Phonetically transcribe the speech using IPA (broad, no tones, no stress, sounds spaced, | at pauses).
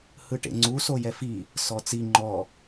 h ɯ ʈ ḛ ŋ͡ǀ u s o j ɛ f i | s ɔ t͡s i ŋ͡ǃ ɔ